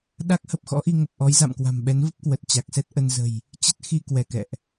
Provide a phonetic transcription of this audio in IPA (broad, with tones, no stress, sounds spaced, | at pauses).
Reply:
ɗ a˦˥ k̚ h ə˨˩ p̚ x ɔ̰˧˥ ʔ i˧ ŋ ə˨˩ p̚ ʔ ɔ˨˦ j z a̰˧˨ m k w a̤˨˩ m ɓ ɛ˨˦ n v ə˦˥ p̚ k w ə˨˩ t̚ t͡ɕ a˨˩ k̚ s ɛ˦˥ t̚ ʔ ə˧ n z ə̤˨˩ j | t͡ɕ ə˦˥ t̚ x i˧ k w ɛ˧˩ k ɛ̰˧˨ ʔ